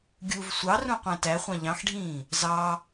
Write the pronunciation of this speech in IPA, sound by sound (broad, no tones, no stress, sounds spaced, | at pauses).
ɡʲ u v sʷ ɑ r ũ qʷ æ̃ t æ χʷ ɑ̃ ʎ ɑ̃ x ɖʱ ĩː | z ɑ